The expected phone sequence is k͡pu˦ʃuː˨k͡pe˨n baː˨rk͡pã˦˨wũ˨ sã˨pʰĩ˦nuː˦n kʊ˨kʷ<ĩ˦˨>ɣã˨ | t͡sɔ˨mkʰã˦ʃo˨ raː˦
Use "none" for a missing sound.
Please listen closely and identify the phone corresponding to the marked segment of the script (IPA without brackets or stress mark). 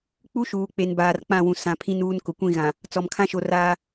ĩ˦˨